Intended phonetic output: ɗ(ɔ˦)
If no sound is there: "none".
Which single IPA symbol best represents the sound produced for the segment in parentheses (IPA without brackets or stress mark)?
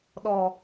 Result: ɔ˨